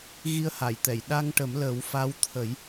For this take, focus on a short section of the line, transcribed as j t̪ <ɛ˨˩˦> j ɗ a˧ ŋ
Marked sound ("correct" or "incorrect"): incorrect